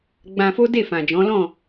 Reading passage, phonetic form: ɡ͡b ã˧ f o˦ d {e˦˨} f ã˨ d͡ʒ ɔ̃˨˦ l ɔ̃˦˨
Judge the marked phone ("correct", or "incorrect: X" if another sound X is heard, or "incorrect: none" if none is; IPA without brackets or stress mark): correct